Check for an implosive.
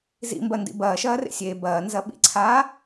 present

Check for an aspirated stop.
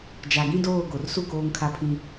present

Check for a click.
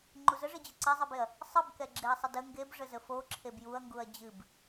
present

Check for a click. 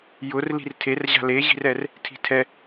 absent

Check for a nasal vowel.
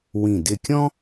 present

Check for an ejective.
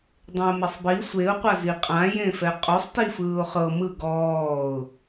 present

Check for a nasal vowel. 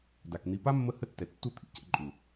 absent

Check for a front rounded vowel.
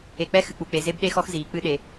absent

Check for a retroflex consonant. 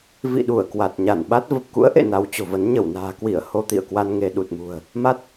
absent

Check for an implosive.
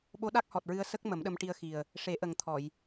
present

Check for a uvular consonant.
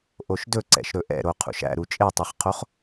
present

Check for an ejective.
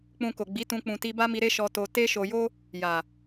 absent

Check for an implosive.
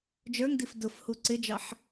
absent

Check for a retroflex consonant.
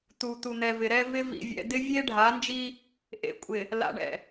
present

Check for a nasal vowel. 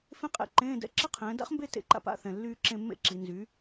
present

